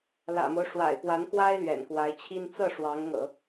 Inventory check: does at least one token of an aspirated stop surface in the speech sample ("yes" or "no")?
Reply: yes